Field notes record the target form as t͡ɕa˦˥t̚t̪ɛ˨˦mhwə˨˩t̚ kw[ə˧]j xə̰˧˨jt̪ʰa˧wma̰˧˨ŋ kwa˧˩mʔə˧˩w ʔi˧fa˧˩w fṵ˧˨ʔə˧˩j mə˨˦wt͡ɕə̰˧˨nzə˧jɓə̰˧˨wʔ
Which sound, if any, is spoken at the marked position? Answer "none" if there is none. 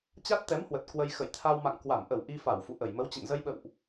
ə˧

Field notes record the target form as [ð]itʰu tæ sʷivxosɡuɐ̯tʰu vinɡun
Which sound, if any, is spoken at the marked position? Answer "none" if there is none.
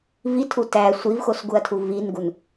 v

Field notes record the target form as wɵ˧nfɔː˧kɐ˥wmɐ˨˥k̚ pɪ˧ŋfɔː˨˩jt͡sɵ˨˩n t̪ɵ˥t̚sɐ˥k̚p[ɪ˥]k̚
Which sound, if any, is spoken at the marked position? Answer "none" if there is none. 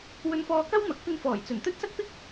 ɪ˥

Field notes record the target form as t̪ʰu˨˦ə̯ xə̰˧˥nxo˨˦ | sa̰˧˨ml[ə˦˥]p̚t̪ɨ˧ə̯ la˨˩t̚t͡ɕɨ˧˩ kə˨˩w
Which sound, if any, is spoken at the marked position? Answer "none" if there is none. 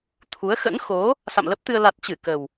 ə˦˥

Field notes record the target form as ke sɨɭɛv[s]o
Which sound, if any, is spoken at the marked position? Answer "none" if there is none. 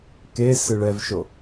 ʃ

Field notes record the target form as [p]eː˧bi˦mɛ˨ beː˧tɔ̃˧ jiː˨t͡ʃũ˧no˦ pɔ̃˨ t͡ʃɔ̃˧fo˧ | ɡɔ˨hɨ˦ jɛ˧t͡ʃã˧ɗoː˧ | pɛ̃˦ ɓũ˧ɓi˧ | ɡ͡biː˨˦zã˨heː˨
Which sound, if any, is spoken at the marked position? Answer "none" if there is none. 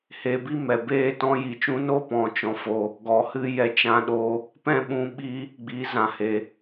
h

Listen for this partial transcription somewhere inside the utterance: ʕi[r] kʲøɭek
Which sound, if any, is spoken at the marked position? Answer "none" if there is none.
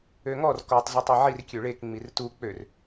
r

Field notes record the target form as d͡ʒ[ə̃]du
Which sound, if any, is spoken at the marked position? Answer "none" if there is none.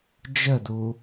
ə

